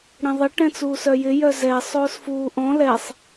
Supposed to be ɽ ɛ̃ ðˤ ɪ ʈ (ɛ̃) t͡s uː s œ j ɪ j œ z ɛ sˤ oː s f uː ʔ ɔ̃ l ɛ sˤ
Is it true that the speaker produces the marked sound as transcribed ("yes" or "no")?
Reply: yes